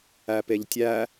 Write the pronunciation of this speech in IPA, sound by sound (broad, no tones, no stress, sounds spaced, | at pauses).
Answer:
æ p e ʎ tʲ æ